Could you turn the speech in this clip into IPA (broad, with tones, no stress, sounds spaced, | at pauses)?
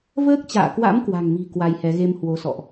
v əː˦˥ k̚ t͡ɕ a̰ː˧˨ k w a̰˧˥ m k w a̤˨˩ ŋ m i̤˨˩ k w a˧ j h ɛ˨˦ ɣ e˧ m h w o˨˦ s ɔ̰˧˨ ʔ